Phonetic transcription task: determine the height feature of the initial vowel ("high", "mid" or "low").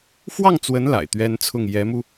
low